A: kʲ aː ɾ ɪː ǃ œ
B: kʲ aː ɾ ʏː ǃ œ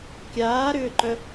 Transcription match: B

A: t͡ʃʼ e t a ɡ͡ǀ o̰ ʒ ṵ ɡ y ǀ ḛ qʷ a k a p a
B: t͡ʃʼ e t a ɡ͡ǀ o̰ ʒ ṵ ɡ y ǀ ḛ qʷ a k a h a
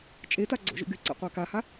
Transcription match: B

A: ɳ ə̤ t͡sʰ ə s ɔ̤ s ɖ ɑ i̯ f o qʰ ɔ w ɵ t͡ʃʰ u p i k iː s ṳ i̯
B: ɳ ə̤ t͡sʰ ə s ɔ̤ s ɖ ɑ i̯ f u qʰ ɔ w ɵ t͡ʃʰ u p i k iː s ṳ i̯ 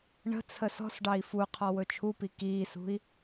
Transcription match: B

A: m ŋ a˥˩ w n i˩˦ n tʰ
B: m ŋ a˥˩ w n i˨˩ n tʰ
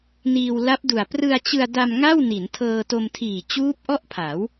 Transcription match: A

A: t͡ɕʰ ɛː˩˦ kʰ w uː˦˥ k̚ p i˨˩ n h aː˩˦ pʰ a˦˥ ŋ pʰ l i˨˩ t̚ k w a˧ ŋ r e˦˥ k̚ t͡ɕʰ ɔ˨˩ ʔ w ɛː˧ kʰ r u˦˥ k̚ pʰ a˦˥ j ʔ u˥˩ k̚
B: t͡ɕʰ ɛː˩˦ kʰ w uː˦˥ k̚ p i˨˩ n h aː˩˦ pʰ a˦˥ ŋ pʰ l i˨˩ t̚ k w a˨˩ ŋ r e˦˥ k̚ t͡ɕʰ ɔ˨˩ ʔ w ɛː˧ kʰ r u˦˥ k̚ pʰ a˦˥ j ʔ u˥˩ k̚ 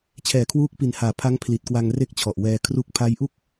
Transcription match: A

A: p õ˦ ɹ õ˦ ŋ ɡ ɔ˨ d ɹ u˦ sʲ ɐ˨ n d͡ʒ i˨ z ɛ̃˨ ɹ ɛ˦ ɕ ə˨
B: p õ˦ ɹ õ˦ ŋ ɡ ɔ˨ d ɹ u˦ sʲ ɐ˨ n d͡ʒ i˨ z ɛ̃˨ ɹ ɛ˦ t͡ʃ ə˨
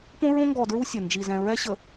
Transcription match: A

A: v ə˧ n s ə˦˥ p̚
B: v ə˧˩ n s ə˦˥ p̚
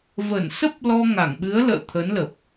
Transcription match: B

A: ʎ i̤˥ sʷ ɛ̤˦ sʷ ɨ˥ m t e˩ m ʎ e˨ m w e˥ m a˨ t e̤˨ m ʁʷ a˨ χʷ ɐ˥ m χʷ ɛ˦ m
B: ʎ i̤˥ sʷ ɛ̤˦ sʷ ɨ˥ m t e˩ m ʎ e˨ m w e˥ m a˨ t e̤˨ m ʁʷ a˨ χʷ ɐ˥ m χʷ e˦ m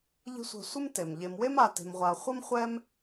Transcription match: A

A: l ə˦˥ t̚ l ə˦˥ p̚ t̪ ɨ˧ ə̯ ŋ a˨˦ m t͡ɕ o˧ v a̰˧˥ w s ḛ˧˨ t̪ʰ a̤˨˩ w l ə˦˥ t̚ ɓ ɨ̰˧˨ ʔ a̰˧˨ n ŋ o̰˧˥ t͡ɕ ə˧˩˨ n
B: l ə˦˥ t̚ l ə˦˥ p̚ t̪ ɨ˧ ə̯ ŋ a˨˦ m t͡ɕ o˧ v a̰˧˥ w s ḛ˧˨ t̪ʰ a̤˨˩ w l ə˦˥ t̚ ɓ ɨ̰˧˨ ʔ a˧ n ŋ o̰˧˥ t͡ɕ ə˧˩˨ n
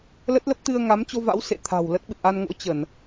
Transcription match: B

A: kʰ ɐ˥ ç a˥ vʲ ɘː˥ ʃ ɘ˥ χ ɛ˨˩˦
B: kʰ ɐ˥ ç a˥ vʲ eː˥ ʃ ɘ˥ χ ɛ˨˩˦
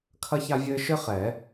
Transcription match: A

